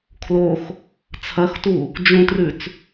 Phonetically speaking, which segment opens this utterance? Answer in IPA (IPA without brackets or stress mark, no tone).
kʰ